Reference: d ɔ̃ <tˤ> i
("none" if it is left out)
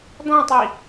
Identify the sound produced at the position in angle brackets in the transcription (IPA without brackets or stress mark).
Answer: tˤ